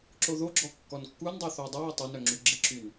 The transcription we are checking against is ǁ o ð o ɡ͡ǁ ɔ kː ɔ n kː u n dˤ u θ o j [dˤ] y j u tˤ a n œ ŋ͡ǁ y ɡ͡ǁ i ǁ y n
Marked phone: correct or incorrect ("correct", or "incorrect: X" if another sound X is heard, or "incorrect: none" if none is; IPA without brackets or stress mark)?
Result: correct